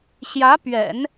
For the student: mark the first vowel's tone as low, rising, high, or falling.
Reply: rising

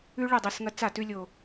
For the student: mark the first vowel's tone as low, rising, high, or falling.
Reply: high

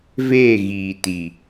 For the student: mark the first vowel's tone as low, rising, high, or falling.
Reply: falling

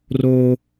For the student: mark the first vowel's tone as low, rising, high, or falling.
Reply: high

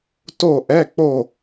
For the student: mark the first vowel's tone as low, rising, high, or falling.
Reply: falling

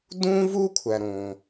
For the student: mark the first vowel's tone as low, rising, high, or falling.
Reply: high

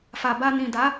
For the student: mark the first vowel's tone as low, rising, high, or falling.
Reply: low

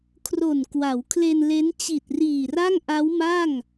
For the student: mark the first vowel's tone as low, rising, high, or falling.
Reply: low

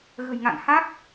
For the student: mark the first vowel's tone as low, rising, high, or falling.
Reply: low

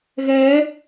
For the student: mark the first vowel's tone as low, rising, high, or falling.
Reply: rising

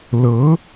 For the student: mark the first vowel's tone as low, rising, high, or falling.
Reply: rising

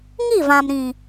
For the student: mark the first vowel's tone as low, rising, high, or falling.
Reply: falling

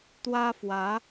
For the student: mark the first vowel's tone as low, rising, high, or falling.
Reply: high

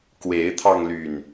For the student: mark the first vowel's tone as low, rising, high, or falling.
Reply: rising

